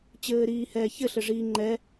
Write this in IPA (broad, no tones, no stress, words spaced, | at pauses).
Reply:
t͡ɕɘːɾiːhɛːçɘ ɬɘʐiːŋ͡ǃɛ